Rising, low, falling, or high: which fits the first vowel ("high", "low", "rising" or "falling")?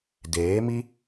rising